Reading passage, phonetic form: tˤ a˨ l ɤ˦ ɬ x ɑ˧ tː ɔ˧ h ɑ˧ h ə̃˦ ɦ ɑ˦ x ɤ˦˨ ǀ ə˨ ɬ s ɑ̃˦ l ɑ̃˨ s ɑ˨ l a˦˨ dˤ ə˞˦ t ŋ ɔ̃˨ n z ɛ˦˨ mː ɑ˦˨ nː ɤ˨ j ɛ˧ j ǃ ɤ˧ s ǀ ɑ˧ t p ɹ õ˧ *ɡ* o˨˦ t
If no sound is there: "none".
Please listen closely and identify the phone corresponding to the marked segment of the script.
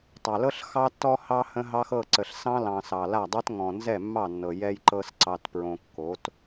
kː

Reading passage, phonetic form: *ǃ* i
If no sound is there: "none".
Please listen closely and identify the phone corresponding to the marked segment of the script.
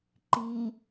ǃ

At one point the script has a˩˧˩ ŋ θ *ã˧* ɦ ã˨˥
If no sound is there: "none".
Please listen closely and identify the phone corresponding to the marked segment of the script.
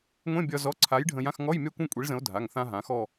ã˧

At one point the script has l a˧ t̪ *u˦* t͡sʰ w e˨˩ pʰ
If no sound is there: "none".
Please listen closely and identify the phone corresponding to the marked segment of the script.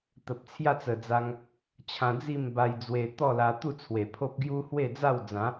u˥˧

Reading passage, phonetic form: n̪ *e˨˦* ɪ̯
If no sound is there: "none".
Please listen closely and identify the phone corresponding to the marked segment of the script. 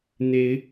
e˨˦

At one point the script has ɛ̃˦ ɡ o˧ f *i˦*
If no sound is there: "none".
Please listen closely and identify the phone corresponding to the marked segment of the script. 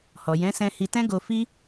i˦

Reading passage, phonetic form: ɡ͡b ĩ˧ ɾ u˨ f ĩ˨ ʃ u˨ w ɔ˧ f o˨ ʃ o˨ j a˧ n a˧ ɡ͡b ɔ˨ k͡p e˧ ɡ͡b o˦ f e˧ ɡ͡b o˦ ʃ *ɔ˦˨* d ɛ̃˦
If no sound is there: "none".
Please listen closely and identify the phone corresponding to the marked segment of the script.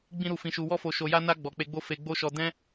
ɔ˧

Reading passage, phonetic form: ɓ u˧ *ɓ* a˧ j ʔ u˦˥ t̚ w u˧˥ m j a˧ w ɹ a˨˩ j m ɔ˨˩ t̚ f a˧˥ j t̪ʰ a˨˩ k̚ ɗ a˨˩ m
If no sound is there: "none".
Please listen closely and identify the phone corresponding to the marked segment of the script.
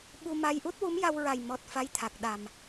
m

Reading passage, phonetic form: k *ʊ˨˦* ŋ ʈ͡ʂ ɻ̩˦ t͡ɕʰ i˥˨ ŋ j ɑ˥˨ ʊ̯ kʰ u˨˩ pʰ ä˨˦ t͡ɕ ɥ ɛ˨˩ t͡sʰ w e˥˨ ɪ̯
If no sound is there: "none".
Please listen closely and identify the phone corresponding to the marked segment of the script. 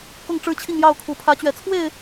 ʊ˥˨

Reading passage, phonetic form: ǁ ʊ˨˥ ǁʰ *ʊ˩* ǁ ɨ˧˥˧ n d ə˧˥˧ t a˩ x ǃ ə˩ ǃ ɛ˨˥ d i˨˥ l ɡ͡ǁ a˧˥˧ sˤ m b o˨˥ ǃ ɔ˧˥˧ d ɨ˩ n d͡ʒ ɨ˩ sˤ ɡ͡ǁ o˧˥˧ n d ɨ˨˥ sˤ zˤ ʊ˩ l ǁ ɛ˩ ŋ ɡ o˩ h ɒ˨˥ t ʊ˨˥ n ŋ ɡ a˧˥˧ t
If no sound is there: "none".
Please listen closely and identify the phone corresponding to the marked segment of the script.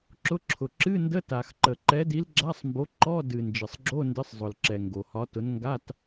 ʊ˩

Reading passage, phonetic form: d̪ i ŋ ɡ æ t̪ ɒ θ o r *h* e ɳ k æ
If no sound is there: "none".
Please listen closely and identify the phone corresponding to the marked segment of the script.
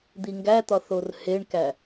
h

